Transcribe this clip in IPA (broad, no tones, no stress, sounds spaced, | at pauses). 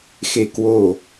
x e k w o